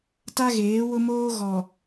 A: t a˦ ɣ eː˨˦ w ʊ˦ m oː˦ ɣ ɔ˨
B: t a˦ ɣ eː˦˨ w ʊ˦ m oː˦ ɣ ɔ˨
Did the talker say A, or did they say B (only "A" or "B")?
A